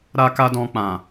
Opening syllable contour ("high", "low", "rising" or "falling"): high